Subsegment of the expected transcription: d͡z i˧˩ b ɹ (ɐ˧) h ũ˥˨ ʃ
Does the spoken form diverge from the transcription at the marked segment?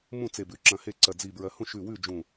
no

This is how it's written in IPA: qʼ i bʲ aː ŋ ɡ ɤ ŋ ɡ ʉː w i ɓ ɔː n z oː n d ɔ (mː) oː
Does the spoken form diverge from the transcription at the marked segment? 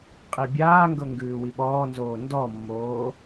no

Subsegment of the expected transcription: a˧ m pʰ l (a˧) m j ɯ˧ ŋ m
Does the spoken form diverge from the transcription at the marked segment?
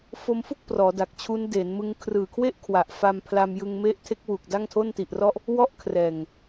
no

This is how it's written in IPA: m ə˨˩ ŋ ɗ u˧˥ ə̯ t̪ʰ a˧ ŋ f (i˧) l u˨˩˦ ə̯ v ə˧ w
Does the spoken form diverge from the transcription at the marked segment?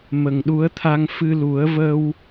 yes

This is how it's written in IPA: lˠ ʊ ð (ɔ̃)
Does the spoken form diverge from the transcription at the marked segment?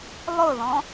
no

